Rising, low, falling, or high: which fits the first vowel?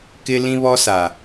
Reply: high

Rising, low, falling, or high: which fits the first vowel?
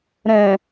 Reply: low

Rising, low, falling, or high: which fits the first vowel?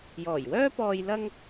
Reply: low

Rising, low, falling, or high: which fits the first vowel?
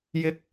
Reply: high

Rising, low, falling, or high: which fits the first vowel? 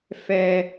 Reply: high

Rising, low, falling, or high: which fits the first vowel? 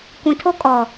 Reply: low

